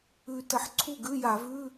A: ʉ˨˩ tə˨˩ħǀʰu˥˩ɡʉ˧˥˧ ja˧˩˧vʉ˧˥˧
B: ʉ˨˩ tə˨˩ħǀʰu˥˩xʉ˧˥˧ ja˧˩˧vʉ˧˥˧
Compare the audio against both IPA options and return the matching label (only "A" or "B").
A